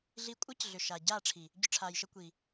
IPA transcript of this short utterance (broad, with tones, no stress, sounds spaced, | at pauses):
ɮ i˧ kʷʼ əː˦ c ɮ ʏ˨ ʃ aː˨ ɟ aː˦˨ ʈ͡ʂʰ i˨ | ɟ ʏ˧ ʈ͡ʂʰ aː˨ j ʃ ə˧ kʷ i˨